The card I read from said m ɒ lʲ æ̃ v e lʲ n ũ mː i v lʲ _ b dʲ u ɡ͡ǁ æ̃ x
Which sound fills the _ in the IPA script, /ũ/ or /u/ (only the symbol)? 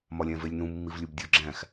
u